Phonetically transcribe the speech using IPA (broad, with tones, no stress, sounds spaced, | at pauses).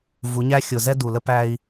v u˨˦ ɲ æ˦ xʲ ʊ˨ z ɛ˦ d u˨ l ə˦ p æ˦ i̯